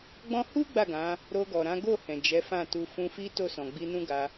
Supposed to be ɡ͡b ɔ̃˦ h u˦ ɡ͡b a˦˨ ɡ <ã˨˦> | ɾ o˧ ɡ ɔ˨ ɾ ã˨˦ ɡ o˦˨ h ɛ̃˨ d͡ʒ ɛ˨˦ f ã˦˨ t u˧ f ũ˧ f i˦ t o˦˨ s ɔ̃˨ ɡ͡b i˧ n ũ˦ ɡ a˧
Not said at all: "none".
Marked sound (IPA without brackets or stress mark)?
ã˨˦